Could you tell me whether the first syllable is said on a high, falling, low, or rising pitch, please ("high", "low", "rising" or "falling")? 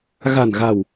low